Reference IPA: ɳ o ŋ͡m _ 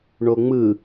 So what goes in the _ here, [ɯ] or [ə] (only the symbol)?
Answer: ɯ